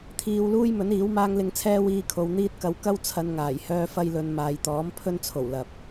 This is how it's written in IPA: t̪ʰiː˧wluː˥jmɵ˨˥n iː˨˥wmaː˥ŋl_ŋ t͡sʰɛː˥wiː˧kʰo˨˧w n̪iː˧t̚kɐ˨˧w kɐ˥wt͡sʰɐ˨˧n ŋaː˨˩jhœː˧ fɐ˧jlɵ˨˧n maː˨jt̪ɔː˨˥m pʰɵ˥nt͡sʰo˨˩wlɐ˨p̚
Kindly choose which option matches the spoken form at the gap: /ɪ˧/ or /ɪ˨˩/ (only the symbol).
ɪ˧